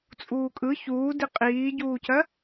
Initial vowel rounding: rounded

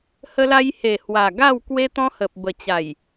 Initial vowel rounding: unrounded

